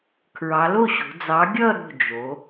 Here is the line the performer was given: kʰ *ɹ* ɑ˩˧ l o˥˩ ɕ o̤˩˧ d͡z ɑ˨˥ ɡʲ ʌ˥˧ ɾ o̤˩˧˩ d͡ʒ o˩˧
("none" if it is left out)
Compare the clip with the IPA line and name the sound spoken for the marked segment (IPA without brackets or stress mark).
ɹ